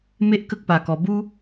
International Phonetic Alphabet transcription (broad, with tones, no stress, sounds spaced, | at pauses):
m e˦ ʔ k ə˦ k̚ p a˧ k ɔ˧ b u˦